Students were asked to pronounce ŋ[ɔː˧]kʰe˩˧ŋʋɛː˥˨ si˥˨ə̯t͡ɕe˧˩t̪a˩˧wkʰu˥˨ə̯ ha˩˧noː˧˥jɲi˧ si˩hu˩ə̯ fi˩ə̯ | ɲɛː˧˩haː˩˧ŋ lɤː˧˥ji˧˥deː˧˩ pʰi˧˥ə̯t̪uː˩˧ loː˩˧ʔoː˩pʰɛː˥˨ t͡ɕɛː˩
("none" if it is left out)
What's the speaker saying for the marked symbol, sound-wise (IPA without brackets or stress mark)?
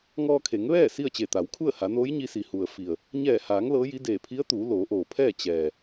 ɔː˧